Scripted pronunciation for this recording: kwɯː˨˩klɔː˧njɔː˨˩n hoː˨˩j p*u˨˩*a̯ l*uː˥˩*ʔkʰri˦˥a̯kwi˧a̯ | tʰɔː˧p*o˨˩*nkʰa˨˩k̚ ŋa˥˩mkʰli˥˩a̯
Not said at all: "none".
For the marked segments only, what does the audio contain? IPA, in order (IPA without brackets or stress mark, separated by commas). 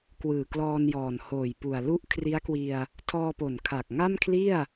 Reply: u˨˩, u˥˩, o˨˩